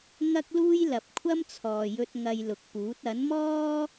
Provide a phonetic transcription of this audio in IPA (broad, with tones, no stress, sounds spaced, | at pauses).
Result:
ŋ ɐ˥ k̚ l uː˥ j l ɐ˨ p̚ kʷʰ ɐ˥ m t͡sʰ ɔː˨ j ɵ˧ t̚ ŋ ɐ˧ j l ʊ˨ k̚ p uː˨˥ t̚ ɐ˨˥ n m ɔː˥